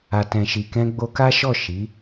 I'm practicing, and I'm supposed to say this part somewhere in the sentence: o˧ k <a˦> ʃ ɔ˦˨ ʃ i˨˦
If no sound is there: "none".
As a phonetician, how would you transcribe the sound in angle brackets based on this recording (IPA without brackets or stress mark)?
a˦